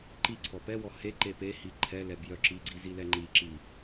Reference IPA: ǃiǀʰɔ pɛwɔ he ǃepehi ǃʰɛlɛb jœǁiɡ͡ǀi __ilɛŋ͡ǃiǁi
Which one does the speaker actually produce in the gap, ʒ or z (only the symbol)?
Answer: z